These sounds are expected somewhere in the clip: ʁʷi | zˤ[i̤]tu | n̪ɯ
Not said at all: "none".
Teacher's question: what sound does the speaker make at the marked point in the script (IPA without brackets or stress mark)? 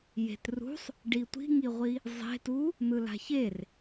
e̤